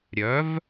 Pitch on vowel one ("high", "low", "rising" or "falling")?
rising